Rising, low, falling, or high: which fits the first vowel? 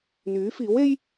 rising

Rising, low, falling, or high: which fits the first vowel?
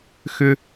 high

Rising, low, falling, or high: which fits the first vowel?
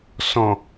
low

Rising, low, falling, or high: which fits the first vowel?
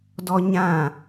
high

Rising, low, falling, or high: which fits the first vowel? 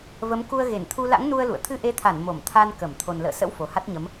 rising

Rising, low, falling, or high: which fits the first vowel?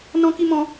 high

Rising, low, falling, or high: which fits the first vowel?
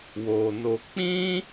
low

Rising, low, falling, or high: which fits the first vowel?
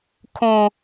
low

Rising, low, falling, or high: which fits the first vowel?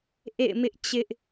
falling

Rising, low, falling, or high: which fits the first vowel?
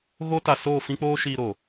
high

